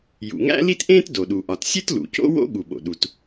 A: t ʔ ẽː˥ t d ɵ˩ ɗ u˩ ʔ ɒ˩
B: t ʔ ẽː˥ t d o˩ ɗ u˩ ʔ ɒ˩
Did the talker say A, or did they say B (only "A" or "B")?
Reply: B